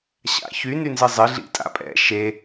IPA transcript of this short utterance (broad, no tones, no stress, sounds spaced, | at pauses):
ɕ a̰ ç y n y n z ɨ zˤ ɨ ɮ ḭ tʼ a̰ pʼ ɛ̰ ʃ e